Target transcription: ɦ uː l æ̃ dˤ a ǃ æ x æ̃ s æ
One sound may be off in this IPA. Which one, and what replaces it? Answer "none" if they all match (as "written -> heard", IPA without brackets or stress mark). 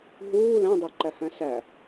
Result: x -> h